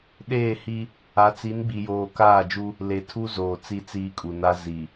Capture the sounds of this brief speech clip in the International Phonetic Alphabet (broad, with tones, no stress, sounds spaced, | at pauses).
ɗ eː˦˨ h i˦ | a˨˦ t͡s i˨˦ n ɡ͡b i˨ j oː˨ k aː˦˨ d͡ʒ u˦ | l e˨ tʰ u˦ z oː˨ t͡s i˦˨ t͡s iː˦ kʼ u˨ n a˦ z i˨